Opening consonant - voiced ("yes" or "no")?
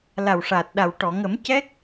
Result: yes